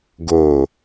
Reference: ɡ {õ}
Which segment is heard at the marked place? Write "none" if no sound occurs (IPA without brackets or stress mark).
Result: o